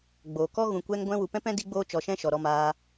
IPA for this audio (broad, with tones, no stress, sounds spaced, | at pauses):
ɡ͡b oː˨ k ɔ˦ ɣ ũ˧ kʷ ɛ˦ ŋ ɡʷ ɛ̃˦ w u˧ p ɛ̃˦ p ɛ̃˦ d i˦ ɡ͡b oː˦ t͡ʃ ɔ˧ ʃ ɛ̃˦ ʃ ɔ˨ ɾ ɔ˧ m aː˧